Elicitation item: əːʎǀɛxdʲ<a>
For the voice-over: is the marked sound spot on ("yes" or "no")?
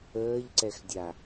yes